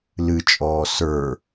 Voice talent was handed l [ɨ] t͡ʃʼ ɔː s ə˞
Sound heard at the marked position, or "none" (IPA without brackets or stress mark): ɨ